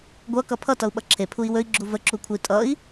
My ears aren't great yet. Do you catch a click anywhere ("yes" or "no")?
yes